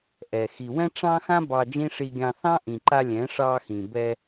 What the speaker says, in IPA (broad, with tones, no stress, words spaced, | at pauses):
ʔɛ˨ xi˨wɛ̃˦ʈ͡ʂɑ̃˦xã˦ bɑ˧d͡ʒĩ˦ʂi˧ɡʲɑ̃˧ θɑ̃˦ʔĩ˨ǃa˧ lʲɛ̃˨˦ʂɑ˧xĩ˨ bɛ˧